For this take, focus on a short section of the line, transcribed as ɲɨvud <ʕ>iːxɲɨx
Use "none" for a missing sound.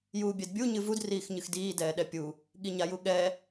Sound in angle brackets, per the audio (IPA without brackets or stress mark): r